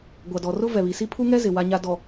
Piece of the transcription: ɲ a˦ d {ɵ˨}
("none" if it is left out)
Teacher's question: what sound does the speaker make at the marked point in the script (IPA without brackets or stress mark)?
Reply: ɔ˨